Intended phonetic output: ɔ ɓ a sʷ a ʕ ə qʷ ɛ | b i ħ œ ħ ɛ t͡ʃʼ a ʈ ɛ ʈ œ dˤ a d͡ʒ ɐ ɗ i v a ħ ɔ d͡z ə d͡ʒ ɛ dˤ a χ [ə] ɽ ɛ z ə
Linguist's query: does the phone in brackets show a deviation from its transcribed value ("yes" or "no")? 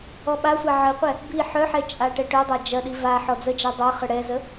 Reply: no